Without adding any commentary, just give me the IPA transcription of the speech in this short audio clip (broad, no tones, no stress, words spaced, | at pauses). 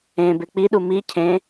ẽbe k͡piɗu mi cʰẽ